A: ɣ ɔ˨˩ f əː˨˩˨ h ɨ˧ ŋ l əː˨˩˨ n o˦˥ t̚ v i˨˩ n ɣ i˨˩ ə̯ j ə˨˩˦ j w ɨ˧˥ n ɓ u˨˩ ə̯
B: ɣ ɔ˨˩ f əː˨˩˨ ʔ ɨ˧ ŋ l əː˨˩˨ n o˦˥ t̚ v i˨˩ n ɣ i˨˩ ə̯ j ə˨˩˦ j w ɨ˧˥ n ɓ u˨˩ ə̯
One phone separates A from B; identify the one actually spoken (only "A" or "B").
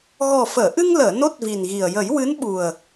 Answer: B